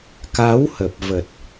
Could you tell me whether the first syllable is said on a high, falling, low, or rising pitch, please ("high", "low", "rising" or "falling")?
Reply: rising